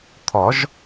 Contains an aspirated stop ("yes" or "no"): yes